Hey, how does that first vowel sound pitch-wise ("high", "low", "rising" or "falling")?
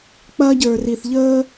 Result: high